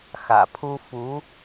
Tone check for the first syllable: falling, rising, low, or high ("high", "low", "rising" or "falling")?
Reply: low